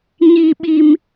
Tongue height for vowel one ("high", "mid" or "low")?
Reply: high